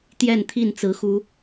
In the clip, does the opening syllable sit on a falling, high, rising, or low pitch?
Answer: falling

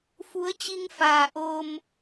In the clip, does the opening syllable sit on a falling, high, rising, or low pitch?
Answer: rising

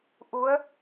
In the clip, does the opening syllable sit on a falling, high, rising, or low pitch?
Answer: rising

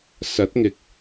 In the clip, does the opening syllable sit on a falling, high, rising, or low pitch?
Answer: rising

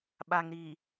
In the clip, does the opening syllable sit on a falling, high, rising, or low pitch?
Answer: low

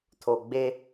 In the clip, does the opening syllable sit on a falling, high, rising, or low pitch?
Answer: low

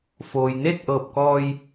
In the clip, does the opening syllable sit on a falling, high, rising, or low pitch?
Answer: low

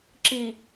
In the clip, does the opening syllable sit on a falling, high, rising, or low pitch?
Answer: low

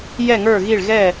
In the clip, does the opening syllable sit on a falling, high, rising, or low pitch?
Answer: falling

